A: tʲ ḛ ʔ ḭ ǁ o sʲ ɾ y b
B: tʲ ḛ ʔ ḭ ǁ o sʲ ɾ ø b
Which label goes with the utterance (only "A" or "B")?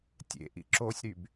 A